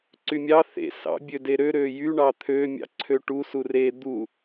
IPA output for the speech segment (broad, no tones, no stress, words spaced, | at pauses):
ǀymʲɑ θḛ sɑ̰bʲø deɾø ɾøjy ɳɑt̪ʰømʲɑ̰ ǀʰøʈusu re d̪u